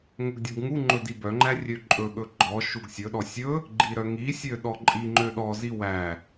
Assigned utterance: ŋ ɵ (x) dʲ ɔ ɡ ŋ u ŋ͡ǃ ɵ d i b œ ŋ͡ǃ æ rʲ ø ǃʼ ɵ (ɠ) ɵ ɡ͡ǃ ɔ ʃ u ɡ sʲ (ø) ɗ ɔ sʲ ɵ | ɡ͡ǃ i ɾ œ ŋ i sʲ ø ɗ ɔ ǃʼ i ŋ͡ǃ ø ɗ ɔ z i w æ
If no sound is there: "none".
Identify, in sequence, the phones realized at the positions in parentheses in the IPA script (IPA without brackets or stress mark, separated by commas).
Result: ɡ, ɠ, ɵ